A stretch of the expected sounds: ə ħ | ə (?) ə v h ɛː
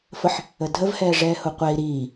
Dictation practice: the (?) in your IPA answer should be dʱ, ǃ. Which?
dʱ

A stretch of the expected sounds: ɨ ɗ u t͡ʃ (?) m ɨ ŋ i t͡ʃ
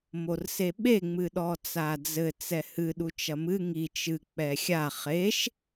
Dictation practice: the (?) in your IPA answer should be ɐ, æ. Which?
ɐ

